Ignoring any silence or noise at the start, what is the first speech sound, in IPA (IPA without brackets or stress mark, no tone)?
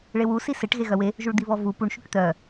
ɭ